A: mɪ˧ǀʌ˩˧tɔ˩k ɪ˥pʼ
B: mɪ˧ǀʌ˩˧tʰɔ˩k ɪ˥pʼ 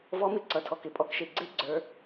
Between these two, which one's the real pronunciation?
B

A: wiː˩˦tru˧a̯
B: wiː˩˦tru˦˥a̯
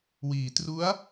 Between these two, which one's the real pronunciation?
B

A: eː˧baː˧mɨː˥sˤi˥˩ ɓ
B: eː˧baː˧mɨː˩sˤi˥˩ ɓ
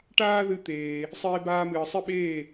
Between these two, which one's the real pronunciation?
B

